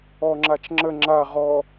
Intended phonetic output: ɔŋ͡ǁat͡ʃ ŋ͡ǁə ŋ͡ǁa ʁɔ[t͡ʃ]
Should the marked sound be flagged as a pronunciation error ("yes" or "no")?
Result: yes